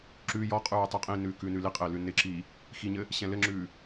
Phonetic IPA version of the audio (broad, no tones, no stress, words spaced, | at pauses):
ǁʉ jɔqʼʉː tˤiqʼĩnʉː kʉːnʉliqʼɪː lʉnɪǁiː | xiɲɘ | ɕɛ̃lɘŋ͡ǁʉː